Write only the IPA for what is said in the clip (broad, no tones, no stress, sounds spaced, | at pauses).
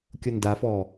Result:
kʲ ʊ n d a f ɔ